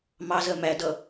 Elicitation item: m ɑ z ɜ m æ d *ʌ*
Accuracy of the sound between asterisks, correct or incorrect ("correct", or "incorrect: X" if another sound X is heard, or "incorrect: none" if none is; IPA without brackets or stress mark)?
correct